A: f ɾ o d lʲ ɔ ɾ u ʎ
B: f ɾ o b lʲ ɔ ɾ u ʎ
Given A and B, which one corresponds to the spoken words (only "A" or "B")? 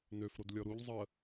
A